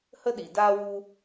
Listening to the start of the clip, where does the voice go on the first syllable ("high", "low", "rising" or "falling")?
high